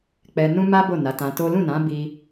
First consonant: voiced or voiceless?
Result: voiceless